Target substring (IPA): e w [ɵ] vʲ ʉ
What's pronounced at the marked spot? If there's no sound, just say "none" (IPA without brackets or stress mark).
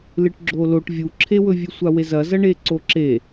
ɵ